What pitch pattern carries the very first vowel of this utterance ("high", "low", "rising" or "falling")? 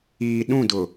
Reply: low